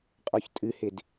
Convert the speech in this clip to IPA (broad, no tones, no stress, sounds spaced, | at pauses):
qʼ ɔ ç tʼ ɨ h ɪ d